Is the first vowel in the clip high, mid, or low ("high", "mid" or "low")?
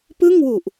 high